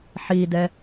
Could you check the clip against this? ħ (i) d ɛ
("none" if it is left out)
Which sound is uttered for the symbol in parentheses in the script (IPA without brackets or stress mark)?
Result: i